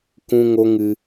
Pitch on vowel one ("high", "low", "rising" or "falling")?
high